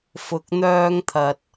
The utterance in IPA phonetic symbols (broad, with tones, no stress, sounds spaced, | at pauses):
f ʊ˧ k̚ n̪ œː˥ ŋ t̪ʰ ɐ˧ t̚